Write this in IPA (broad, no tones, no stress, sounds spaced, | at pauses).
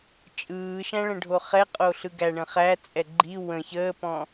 t͡ʃʼ ɯː ʃ æ̃ ɭ ə̃ ɖʱ o χ ɛ qʼ o ɬ ɯ ɡ æ ɳ ə̃ χ æ t͡sʼ ɛ ɡ͡ǃ i w ə̃ ç əː p ɔ̃